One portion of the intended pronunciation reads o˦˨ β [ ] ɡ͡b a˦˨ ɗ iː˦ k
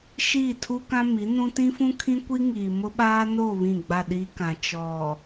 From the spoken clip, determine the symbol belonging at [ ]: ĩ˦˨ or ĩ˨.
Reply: ĩ˦˨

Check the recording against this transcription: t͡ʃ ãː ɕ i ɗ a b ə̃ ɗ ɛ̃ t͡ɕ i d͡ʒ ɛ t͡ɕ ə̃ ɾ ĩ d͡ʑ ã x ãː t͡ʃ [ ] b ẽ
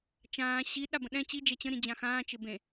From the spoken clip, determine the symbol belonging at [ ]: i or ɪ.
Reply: ɪ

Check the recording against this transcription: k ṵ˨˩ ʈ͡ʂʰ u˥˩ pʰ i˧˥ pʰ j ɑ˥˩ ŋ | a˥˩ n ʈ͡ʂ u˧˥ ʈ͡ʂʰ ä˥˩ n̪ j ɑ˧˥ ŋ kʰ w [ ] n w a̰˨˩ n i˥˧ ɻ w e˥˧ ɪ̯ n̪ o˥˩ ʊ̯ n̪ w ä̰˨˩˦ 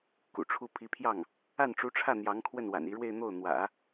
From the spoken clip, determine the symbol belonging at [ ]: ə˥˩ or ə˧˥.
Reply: ə˥˩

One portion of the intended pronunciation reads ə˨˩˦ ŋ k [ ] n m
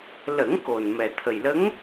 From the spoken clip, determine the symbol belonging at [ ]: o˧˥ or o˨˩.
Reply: o˨˩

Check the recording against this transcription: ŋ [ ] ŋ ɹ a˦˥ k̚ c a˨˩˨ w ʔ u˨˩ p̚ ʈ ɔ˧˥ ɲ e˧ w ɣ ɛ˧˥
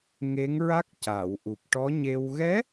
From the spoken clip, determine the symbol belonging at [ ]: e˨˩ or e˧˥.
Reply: e˧˥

